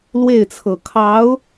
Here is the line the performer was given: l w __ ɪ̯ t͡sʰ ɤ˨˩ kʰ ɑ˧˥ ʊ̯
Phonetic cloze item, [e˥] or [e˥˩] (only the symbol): e˥˩